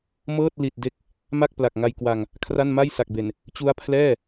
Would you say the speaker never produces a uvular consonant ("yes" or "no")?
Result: yes